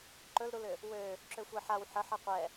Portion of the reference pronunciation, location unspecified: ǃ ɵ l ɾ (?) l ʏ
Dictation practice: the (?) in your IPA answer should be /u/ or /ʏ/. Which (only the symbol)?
u